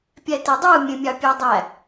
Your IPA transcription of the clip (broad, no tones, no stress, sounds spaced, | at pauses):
pʲ æ t e dˤ ɯ mʲ ẽ mʲ ɑ pʲ æ dˤ æ